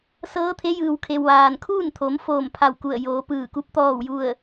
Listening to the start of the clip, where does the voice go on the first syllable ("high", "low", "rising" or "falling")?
rising